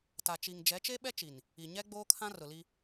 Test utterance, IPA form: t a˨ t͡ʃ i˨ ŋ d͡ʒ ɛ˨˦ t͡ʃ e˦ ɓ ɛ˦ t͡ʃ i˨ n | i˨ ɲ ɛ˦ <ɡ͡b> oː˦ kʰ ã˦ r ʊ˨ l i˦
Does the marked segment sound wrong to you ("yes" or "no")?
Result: no